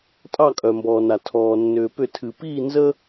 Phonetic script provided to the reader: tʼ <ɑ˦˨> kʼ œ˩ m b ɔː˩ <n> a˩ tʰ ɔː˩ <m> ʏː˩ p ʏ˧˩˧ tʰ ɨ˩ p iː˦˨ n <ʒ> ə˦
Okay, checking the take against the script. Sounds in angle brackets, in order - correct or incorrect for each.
correct, correct, incorrect: nː, incorrect: z

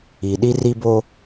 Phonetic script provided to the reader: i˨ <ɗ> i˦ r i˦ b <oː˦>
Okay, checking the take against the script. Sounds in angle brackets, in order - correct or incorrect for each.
correct, incorrect: o˦

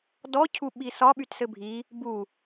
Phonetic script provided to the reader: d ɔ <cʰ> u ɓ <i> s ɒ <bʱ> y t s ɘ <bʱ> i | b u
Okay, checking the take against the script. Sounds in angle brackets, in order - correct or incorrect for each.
correct, correct, incorrect: ɓ, correct

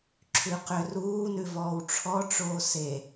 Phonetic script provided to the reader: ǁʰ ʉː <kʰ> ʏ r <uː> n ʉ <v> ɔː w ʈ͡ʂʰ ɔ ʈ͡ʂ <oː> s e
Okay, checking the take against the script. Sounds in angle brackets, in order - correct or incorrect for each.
incorrect: q, correct, correct, correct

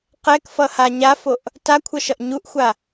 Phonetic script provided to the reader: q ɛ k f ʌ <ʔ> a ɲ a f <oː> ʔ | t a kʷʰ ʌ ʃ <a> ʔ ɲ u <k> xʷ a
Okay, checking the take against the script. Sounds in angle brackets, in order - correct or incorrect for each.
incorrect: h, incorrect: o, incorrect: ʌ, incorrect: ʔ

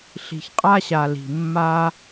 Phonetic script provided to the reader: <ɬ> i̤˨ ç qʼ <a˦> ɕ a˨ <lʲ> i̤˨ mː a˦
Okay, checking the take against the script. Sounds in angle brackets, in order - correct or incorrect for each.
correct, correct, incorrect: l

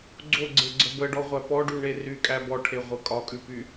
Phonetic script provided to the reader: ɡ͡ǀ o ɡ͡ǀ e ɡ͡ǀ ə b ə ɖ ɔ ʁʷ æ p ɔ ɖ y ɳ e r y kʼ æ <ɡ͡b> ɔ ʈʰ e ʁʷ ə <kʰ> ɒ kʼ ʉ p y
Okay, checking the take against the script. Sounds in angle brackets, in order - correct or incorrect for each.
incorrect: b, incorrect: kʼ

